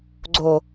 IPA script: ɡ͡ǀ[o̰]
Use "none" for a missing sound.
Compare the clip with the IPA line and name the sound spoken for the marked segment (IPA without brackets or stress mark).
o